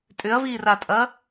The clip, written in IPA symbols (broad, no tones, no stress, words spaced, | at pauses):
tʼʏɐ̯viːratʼɐ